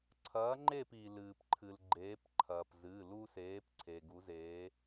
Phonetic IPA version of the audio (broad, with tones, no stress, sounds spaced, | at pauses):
ǀʰ ɐː˨˦ ŋ͡ǃ e˦˨ p iː˩ l ɨː˩ p ǃʰ ɨ˩ l ɡ͡ǃ eː˨˦ p ǃʰ ɐː˩ p z ɨ˩˧˩ l u˦ s eː˨˦ p ǀʰ e˩ ɡ u˨˦ z eː˨˦